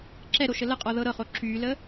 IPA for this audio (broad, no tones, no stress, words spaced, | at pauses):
ǁɛɾo ʃələqʼɔ ðɤɾɤχo ǁylə